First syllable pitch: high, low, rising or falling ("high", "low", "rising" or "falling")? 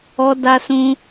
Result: high